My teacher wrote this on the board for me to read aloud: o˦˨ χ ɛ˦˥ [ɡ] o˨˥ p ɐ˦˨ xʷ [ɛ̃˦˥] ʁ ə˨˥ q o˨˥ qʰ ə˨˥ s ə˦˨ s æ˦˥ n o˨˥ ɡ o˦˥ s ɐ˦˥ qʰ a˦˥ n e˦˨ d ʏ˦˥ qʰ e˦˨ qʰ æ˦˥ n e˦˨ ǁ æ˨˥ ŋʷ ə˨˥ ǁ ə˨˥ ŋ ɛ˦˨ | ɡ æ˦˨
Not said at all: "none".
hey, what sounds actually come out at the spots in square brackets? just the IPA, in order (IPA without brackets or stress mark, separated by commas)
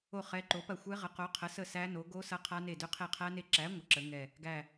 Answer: ǃ, ɛ˦˥